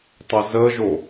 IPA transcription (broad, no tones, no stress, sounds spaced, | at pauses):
tˤ ə z ə ʒ o